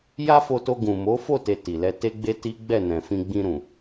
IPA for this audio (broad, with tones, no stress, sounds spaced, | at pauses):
j a˦ f o˧ t o˧ ɡ ũ˨ m o˨˦ f o˦˨ t e˨ t i˨ l ɛ˧ t e˦ ɡ͡b e˦ t i˦ ɡ͡b ɛ˦˨ n ɛ̃˨ f ĩ˧ ɡ͡b ĩ˧ ɾ ũ˨